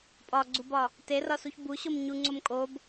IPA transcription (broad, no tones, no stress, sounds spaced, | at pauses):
pʼ ɒ ɡ͡ǀ u b ɒ | t e r ɒ s u ç b u ɕ o m ɲ u ŋ͡ǀ o m kʼ o b